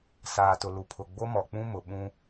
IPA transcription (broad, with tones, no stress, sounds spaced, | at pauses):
s aː˨ t ʊ˨ l u˨ pʰ ʊ˨ ɡ͡b o˦ m ɔ˨ k͡p ũ˦ m ʊ˨ ɓ ũ˦